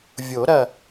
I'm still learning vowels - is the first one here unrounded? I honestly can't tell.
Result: no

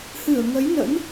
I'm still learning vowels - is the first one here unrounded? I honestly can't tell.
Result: yes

